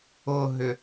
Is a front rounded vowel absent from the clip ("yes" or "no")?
no